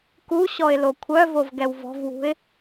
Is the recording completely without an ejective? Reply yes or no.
yes